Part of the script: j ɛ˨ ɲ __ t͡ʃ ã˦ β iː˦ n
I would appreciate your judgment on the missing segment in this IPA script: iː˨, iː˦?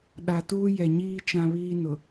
iː˦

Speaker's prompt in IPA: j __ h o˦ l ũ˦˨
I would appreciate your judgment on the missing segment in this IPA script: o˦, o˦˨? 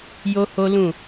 o˦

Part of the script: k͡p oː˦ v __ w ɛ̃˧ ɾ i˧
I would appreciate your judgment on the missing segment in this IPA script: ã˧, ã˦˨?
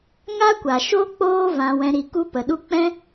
ã˧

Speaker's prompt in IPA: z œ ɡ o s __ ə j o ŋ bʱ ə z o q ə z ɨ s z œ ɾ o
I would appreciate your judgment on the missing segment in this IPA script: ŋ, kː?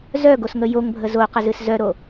ŋ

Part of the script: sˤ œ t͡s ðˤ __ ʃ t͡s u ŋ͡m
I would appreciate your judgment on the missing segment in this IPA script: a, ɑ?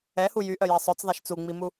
a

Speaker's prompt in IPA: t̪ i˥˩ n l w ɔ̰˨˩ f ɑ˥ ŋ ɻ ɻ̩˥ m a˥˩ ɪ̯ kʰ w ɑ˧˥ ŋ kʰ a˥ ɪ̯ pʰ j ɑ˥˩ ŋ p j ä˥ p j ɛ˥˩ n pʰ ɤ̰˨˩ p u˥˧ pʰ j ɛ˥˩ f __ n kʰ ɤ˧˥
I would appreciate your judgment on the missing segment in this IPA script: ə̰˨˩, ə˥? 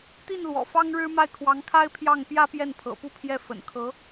ə̰˨˩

